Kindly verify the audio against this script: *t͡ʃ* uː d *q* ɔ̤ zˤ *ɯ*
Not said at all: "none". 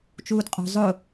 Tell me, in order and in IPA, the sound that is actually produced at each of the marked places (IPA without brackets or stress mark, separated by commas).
t͡ʃ, qʼ, ʊ